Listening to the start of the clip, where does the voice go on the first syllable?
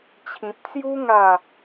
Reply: low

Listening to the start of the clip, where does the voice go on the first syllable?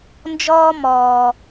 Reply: high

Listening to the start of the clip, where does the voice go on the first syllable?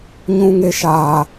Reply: high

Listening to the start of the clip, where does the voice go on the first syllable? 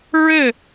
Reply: falling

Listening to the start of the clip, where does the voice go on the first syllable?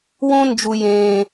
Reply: high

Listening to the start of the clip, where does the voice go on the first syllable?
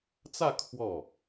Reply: falling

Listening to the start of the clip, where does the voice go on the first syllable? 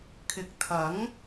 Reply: rising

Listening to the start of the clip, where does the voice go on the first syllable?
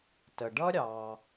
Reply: low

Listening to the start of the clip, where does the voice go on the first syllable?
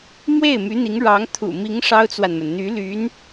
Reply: falling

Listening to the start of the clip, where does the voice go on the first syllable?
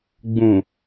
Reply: low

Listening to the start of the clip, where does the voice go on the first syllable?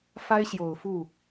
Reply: high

